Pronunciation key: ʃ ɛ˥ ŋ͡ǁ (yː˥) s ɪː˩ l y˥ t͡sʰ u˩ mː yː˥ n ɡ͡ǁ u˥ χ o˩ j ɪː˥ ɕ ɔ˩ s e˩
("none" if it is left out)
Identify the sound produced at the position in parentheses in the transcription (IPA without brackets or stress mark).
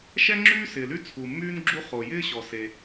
yː˥